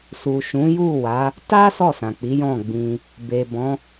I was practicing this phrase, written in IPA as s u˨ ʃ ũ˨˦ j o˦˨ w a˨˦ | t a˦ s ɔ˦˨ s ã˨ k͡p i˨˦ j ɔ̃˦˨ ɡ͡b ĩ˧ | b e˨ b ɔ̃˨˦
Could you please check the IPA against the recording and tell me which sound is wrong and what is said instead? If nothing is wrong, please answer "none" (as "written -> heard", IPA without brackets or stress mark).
o˦˨ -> u˦˨